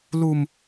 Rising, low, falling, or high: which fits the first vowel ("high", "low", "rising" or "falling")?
low